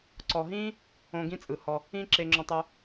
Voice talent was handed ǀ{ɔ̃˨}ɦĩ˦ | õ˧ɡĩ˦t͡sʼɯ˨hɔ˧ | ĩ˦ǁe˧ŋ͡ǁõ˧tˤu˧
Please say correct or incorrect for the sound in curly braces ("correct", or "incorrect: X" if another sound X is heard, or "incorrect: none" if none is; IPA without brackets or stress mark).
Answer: incorrect: ɔ˨